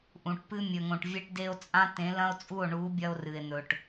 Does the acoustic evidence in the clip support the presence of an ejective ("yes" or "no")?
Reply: yes